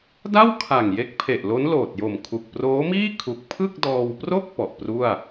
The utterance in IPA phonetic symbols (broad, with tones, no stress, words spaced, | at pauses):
da˥˩w kʰa˨˩ŋje˦˥k̚pʰe˨˩ʔlo˦˥n loː˨˩t̚jo˨˩mkʰu˨˩k̚ proː˦˥miː˥˩kʰu˨˩k̚ pʰɯ˥˩k̚dɔː˧wpro˥˩k̚ pɔ˨˩ʔ pru˥˩a̯